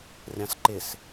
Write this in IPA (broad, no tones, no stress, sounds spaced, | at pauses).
rʲ ɑ̃ s ǃ ɪ s